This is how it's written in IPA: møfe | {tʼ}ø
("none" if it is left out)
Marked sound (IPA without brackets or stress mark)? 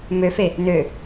n